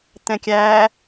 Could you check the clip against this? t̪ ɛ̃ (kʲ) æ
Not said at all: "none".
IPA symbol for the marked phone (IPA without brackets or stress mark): kʲ